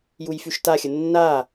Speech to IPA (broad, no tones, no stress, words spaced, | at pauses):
jujfyʃtaxʲə nːa